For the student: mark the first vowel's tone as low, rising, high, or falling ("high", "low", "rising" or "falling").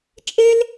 high